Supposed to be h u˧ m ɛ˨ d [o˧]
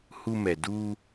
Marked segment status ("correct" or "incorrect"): incorrect